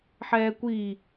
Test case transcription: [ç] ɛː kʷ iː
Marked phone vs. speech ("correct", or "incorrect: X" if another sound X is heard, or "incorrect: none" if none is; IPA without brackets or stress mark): incorrect: ħ